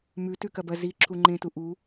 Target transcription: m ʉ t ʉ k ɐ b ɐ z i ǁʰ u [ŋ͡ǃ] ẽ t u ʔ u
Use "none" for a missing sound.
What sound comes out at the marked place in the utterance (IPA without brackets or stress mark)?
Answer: ŋ͡ǃ